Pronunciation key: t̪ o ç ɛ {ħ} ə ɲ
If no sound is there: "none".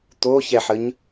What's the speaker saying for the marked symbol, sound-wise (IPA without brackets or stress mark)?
ħ